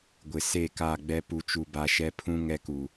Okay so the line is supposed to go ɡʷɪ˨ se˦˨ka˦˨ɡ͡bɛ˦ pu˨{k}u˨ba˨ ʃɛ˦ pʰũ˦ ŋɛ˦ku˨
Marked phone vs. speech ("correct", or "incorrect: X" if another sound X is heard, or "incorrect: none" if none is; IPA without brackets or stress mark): incorrect: t͡ʃ